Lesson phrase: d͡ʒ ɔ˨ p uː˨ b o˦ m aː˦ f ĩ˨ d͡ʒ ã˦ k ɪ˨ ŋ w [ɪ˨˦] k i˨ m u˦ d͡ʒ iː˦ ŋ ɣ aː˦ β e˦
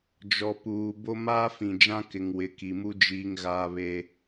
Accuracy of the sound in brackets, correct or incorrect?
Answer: correct